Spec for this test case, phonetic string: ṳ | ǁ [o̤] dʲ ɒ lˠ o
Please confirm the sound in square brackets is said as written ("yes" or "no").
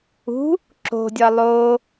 yes